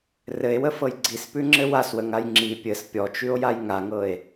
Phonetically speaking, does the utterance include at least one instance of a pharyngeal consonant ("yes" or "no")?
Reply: no